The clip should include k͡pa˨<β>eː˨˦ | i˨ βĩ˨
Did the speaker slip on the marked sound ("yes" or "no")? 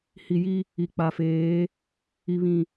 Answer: yes